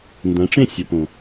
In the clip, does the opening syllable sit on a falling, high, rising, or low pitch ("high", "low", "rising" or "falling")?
rising